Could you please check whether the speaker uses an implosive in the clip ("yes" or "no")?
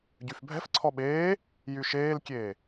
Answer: yes